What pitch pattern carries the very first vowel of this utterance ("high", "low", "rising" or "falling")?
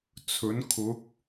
rising